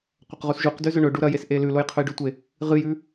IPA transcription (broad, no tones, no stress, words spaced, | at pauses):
qʷɐqʁusʒuqdʉ zɵɳɵɖu ɾɐjes ʔelʉloj qʰɵjɖʉtʷe | ʁɨjʉ